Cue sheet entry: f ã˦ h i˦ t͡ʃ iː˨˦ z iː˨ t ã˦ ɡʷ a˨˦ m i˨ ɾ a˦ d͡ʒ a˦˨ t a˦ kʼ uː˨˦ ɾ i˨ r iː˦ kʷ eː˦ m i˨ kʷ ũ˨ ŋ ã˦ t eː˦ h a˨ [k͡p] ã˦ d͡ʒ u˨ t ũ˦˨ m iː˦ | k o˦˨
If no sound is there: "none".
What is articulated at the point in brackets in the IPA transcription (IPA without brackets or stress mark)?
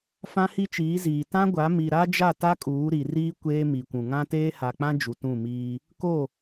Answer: k͡p